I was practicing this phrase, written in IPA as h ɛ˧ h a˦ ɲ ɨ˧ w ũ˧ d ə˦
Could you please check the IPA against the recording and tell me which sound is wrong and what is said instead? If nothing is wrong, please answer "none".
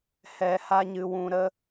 d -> ɾ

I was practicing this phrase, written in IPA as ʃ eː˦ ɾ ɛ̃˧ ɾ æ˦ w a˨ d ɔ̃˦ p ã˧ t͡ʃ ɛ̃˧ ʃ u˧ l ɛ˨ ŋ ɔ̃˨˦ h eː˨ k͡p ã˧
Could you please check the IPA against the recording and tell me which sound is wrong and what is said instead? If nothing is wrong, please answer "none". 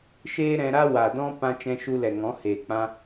æ˦ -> a˦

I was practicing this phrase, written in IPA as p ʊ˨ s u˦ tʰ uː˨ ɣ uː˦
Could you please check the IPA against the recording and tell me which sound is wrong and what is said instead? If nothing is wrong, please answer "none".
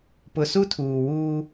ɣ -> w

